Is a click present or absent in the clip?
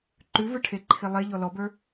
present